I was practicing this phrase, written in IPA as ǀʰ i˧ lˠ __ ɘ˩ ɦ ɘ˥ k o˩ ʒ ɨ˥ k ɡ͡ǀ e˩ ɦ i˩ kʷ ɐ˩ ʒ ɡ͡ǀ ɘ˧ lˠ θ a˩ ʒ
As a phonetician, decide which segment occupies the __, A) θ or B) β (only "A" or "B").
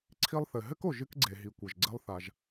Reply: A